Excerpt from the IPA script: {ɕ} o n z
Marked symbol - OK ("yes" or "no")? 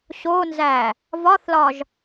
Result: yes